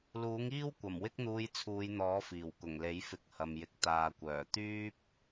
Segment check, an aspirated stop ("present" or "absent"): present